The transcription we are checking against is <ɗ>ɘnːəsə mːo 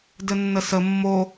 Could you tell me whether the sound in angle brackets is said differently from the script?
yes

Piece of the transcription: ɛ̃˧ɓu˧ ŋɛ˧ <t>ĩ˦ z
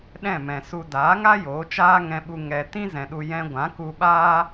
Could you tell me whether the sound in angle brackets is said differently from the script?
no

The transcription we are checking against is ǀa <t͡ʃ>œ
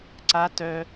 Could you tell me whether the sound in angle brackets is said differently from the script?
yes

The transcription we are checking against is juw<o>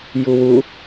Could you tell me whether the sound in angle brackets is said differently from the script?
yes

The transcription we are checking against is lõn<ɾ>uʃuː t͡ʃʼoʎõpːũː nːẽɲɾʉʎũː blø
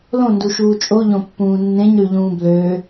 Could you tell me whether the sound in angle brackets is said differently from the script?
yes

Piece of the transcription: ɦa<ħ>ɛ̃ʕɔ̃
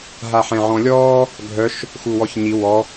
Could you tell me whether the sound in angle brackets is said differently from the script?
no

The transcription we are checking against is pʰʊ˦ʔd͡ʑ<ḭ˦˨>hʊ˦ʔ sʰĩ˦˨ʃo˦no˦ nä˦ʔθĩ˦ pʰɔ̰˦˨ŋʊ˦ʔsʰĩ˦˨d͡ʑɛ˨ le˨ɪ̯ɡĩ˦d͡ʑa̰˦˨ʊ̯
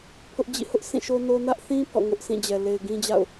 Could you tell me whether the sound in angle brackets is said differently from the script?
no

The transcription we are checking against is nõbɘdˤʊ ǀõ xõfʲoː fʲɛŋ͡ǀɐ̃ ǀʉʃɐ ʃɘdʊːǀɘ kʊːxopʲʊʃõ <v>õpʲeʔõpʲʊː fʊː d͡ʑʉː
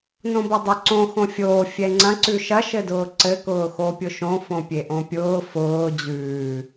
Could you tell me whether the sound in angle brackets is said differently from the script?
yes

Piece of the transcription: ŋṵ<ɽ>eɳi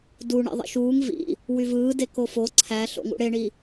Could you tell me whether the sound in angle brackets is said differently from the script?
no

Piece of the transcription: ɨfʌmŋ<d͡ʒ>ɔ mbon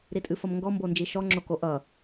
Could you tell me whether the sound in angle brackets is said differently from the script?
yes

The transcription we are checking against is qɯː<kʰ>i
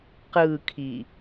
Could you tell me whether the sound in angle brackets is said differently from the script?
no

